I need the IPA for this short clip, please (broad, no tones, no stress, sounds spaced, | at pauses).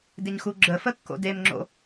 d ɪ ɲ x u ɡ͡ǁ ə f ə kː o̰ d e m ŋ͡ǁ o̰